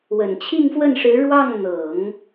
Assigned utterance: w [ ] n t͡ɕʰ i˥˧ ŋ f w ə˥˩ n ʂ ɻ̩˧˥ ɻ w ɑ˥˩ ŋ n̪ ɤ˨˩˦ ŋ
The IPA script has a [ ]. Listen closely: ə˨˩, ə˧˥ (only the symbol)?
ə˨˩